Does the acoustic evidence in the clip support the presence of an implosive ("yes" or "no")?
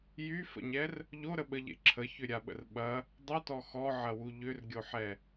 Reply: yes